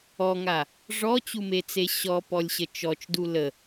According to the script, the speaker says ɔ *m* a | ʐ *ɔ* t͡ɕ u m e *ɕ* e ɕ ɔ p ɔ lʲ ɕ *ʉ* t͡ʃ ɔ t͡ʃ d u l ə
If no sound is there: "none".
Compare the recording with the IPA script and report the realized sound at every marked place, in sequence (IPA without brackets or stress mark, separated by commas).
ŋ, ɔ, t͡s, ə